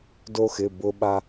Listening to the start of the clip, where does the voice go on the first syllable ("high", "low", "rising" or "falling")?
high